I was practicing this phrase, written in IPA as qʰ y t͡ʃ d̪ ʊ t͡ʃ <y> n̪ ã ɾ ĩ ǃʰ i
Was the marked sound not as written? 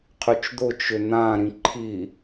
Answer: yes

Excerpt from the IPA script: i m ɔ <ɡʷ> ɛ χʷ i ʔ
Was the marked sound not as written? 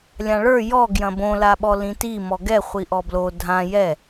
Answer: yes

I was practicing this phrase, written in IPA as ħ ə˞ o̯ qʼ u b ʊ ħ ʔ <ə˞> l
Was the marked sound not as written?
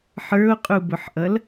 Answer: yes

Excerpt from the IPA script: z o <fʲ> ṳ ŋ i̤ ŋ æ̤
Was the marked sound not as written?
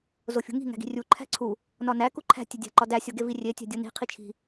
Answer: no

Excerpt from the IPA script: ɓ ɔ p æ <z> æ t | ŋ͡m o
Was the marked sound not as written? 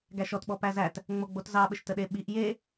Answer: no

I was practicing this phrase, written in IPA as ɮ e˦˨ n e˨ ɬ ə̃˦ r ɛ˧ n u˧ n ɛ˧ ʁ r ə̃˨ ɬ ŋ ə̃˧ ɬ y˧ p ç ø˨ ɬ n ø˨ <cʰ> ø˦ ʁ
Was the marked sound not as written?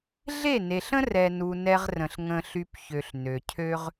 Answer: no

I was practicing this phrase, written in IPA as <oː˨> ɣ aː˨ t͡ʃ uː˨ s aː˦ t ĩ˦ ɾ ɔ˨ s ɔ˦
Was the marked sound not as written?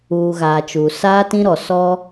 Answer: yes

